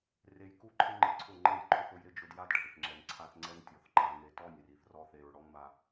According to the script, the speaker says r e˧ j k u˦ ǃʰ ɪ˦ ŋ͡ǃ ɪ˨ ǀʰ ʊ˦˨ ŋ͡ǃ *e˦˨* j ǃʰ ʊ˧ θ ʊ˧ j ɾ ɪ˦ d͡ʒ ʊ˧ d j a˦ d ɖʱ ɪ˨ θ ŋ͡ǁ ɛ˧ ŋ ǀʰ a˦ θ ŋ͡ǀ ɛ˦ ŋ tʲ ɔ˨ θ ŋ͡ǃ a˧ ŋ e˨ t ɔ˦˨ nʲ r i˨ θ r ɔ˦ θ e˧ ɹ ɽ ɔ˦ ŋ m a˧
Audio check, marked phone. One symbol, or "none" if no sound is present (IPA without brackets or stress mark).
e˦˨